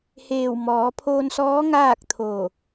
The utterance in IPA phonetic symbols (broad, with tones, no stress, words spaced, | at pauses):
heː˧˩wmɔː˩˧pʰoː˧nsɔː˧˥ ŋaː˥˨k̚t̪ʰo˧˩